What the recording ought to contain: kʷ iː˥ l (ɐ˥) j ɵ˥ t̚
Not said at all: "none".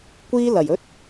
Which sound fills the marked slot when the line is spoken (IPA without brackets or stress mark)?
ɐ˨˩